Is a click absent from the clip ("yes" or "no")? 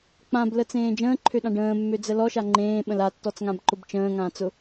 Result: no